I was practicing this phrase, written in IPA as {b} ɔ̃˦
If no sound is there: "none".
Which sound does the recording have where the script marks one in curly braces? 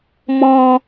m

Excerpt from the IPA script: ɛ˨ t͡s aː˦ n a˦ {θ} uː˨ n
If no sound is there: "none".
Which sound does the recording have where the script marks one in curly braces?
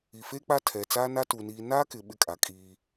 t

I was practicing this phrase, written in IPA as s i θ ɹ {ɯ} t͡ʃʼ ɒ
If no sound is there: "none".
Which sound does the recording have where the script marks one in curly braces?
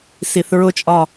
ʊ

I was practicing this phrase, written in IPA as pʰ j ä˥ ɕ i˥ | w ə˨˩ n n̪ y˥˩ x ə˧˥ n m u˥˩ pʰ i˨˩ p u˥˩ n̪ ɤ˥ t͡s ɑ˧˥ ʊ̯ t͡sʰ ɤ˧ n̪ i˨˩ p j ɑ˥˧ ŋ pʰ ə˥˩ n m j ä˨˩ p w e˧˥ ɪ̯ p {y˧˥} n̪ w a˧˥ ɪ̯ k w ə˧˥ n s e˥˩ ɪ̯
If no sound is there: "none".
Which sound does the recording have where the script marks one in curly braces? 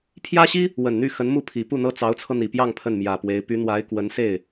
y˧˥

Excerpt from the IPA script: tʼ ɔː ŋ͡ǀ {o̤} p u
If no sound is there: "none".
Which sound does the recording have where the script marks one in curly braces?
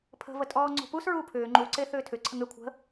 o̤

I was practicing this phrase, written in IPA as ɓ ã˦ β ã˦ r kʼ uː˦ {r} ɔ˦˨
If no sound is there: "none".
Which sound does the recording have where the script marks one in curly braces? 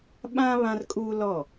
l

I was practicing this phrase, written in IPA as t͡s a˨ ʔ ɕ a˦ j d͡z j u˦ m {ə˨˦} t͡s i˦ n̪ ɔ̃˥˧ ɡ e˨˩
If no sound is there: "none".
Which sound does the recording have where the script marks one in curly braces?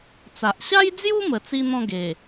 ə˨˩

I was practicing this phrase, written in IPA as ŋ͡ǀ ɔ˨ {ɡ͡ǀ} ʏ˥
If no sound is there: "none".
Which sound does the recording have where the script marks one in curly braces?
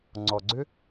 ɡ͡ǀ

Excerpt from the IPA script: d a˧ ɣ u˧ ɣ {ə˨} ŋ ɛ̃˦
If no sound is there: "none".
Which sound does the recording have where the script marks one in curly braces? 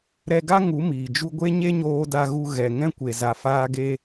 ɛ˨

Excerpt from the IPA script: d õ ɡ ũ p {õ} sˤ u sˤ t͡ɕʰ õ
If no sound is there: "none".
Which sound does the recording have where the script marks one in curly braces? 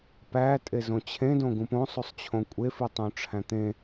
õ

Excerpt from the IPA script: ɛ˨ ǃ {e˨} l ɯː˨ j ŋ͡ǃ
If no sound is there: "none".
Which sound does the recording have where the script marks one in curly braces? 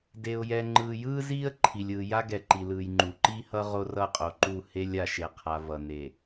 i˨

